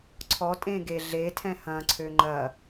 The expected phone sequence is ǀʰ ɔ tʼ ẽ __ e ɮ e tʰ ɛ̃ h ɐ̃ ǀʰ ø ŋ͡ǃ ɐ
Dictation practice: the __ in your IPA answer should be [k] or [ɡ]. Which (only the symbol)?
ɡ